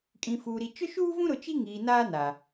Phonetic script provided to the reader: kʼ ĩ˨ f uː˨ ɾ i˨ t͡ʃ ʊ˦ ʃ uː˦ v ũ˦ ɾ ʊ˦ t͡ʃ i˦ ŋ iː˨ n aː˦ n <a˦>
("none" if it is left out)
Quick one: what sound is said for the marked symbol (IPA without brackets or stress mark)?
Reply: a˨